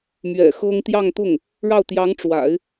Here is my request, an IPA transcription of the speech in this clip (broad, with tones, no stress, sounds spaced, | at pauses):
m ɥ ɛ̰˨˩ x ɤ˥ ŋ t̪ j ɑ˥˧ ŋ t̪ ʊ˥˩ ŋ | ɻ ɑ˥˩ ʊ̯ t̪ j ɑ˧˥ ŋ ʈ͡ʂ w a̰˨˩˦ ɪ̯